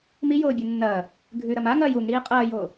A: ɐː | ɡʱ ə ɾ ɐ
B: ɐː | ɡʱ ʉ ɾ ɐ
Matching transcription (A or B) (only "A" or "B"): B